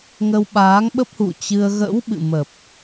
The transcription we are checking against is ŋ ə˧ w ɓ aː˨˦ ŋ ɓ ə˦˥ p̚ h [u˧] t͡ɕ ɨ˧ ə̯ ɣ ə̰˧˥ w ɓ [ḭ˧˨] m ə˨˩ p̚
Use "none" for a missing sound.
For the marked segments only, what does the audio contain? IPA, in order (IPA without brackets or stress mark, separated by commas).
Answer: ṵ˧˨, ɨ̰˧˨